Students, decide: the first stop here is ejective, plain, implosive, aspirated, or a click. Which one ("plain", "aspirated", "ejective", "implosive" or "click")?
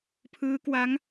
aspirated